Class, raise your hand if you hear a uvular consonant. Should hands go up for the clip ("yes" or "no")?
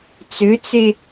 no